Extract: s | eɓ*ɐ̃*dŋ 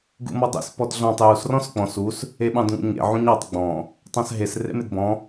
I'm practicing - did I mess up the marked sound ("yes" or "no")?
yes